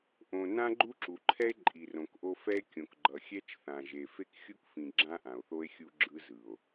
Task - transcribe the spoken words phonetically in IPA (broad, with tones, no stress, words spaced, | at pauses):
ʔõ˨ nã˦ɡ͡ǃu˦ǁu˨ǃʰɛ˦e̯ ǃʼi˨rõ˨kʔo˦ fɛ˦e̯kʲõ˨k ɡ͡ǃʌ˨xʲɛ˦t͡ʃ θã˨ʒe˨ fe˦kxʲu˦kfĩ˨ ɡ͡ǁã˦ʔã˨o̯θo˦e̯ xʲu˦ɡ͡ǁɯ˦zɯ˨o̯